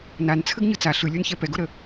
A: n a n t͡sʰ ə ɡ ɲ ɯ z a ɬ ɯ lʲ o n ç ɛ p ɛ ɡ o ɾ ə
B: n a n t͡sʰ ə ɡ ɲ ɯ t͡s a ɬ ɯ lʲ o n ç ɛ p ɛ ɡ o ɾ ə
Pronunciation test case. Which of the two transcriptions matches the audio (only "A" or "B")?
B